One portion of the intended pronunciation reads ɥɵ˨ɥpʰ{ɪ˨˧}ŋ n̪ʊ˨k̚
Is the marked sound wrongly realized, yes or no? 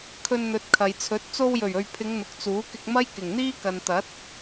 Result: no